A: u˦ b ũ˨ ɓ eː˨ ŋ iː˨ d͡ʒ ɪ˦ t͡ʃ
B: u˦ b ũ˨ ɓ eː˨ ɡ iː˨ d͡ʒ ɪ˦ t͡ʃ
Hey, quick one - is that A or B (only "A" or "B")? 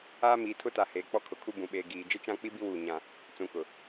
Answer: B